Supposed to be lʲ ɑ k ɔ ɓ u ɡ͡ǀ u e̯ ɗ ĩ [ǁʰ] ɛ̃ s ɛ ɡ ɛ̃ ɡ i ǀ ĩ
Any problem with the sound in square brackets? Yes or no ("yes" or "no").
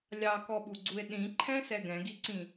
yes